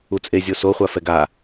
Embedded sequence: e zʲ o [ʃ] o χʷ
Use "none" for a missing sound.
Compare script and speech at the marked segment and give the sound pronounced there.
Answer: s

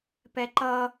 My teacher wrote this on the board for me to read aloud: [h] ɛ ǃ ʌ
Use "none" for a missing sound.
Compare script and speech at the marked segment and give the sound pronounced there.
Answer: p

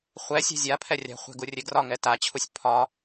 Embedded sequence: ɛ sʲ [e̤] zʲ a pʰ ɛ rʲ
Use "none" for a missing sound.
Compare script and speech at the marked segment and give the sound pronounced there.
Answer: ɛ̤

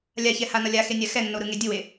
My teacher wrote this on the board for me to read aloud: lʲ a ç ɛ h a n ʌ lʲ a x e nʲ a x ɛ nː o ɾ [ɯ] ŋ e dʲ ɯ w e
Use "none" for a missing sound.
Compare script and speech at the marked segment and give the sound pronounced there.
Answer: ɯ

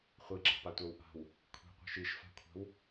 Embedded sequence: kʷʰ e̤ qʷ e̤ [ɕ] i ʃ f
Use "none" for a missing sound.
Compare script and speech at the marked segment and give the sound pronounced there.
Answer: ʃ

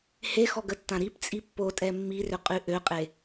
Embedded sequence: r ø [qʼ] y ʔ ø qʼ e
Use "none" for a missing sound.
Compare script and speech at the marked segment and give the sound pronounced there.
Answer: qʼ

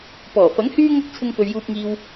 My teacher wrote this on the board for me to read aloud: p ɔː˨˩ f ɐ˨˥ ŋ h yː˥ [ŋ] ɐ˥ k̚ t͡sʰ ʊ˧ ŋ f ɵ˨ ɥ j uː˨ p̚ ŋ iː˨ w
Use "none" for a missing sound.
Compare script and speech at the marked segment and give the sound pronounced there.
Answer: ŋ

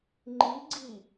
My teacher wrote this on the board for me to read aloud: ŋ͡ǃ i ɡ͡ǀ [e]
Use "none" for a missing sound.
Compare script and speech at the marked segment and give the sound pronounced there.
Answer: i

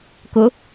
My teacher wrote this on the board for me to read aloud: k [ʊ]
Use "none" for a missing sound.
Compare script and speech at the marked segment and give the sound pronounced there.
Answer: ʊ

